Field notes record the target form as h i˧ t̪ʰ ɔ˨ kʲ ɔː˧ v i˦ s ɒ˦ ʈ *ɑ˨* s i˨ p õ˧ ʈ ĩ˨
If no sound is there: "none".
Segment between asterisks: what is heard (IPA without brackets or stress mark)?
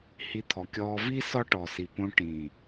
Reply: ɔ˨